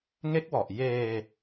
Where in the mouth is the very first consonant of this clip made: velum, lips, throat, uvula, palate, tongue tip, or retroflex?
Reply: velum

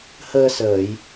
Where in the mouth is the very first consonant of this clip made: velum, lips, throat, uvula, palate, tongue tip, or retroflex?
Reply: throat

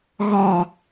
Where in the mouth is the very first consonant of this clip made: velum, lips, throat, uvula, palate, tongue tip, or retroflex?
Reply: velum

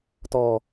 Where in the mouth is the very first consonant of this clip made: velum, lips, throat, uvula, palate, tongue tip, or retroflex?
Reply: tongue tip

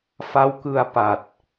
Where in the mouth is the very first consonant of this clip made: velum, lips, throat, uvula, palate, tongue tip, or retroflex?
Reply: lips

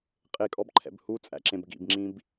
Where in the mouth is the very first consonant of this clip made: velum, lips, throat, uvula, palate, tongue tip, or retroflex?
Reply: uvula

